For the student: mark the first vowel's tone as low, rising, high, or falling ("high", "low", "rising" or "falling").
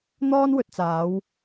high